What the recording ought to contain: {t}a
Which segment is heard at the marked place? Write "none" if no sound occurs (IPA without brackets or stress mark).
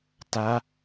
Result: t